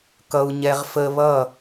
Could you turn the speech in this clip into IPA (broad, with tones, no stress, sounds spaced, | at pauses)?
k ʌ˧ u̯ ɲ ɛ˧ ʁ f ə˧ β ʌ˦˨